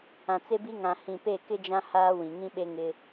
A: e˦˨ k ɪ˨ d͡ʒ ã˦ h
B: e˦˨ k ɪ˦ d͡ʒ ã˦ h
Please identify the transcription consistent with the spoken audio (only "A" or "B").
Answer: B